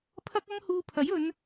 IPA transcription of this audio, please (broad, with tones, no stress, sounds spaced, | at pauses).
pʰ ɐ˥ k̚ ɐ˥ ŋ h uː˧ pʰ ɐ˨˥ j ɵ˨˧ n